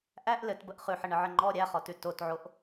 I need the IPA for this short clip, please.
ʔ æ ʔ l ɘ t b ə ʔ χ ʉ ħ ə ɳ ə ʕ ɘ ŋ͡ǃ ɔ ɾʲ æ χ ɔ t ʉ t o t ʕ o ʔ

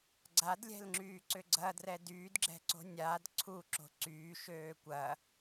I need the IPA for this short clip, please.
ɡ͡ǀ a d lʲ ɛ̤ l ŋ͡ǁ yː ǀ ʏ ɡ͡ǀ ɐ d r ɛ d yː d ɡ͡ǁ ɛ̤ ǀ o̤ nʲ a d ǀʰ u ǁ o̤ ǀ yː ʃ øː kʷ ɐː

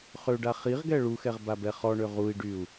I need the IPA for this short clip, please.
χ ø ɖ a χ i ʁ ɡ ɛ ɭ u x ɛ ʁ b a b ɛ χ ɔ ɳ ø ʁ u i̯ ɖ y u̯

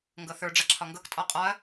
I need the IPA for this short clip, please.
ŋ ɡ ɤ θ ə˞ ɖ͡ʐ a ǁʰ ɒ ŋ ɡ ɤ k tʼ ɒ qʼ ɒ ɐ̯

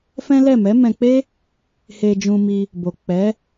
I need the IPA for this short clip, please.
f ɛ̃˦ l ɛ˦˨ m ɛ˨˦ m ɛ̃˧ k͡p e˦ | h e˧ d͡ʒ ũ˧ m i˧ | b o˨ k͡p ɛ˨˦

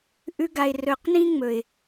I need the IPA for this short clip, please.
ʔ ʉ˧ ɡ a˨ ɪ̯ r ɵ˨ q n ĩ˦ ŋ͡m ɵ˨ ɪ̯

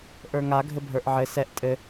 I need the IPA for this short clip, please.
ʔ ə˞ ŋ a ɡʱ ɘ bʱ ə˞ ʔ ʕ ɘ s ɛ ʔ tʼ ɘ

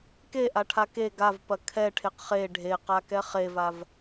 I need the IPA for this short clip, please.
k e ʔ a ʈʰ a k e ɡ a v p ɐ kʰ ɛ ʈʰ e q χ e ɖʱ e q a k ɛ χ e v a v

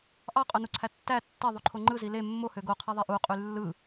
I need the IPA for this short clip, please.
ʔ ɑ qʼ o n u ǀʰ æ tː æ tː e ðˤ u ǃʰ o ŋ͡ǃ ɯ z i l e mː o h ø ɡ o qʰ e ðˤ e ʔ u qʼ y lː ɯ

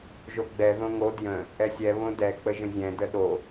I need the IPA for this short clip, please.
ʒ o ɡ͡b ɛ ð õ ŋ o d j ə̃ | ʔ ɛ sʲ ɛ β õ d ɛ k͡p ə ʒ ə̃ zʲ ɛ̃ d ə ɗ o

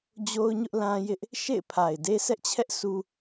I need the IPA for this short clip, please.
d͡ʑ o˦ ʊ̯ ɲ ʊ˦ ʔ l ã˦ j ɪ˦ ʔ | ʃ ḛ˦˨ ɪ̯ pʰ a˨ ɪ̯ d e˦ s ɛ˦ ʔ t͡ɕʰ ɛ˦ ʔ sʰ u˦

